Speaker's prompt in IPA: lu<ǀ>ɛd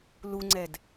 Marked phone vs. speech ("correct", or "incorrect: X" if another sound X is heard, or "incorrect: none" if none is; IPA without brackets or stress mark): incorrect: ŋ͡ǀ